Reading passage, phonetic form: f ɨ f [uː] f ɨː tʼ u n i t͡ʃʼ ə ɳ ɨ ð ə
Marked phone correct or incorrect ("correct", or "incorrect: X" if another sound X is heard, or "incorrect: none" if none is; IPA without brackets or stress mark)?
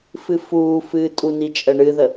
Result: correct